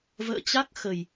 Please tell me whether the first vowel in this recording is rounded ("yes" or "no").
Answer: no